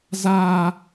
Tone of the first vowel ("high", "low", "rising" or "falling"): high